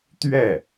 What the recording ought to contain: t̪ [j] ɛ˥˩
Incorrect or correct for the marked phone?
incorrect: ɥ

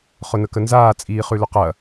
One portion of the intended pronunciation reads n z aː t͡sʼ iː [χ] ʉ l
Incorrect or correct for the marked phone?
correct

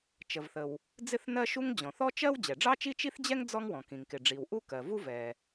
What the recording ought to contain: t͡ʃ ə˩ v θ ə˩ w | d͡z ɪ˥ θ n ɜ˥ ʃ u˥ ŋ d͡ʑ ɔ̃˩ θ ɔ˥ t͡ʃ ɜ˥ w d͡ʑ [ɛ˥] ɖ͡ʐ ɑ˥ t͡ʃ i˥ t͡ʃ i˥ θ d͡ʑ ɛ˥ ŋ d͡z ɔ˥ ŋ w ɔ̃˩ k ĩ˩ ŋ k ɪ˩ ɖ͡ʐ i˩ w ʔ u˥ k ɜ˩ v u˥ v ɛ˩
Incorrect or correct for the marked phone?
incorrect: ɛ˩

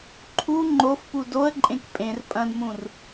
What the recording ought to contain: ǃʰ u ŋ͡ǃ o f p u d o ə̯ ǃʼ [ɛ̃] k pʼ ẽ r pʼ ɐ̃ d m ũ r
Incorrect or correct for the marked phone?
incorrect: ẽ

